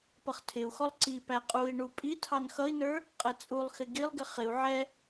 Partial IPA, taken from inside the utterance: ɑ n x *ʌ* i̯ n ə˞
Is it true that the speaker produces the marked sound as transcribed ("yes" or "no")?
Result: yes